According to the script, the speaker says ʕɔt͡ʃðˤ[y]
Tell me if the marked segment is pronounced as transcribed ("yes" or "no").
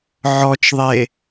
no